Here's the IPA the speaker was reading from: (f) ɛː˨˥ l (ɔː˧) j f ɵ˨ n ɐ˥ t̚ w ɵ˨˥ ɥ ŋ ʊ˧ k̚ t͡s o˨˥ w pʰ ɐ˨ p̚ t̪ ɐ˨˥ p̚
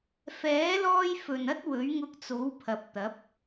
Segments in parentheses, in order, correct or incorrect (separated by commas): correct, correct